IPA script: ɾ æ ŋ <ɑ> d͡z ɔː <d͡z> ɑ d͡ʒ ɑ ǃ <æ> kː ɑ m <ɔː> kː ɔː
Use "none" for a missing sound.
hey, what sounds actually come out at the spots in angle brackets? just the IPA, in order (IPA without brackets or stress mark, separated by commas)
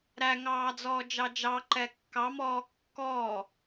ɑː, d͡ʒ, ɛ, ɔː